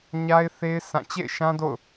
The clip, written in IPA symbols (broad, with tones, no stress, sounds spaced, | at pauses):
ɲ a˦ ɪ̯ θ e˦ ɪ̯ s ã˦˨ t͡ɕ ḛ˦˨ ɪ̯ ʃ ã˦ d o̰˦˨ ʊ̯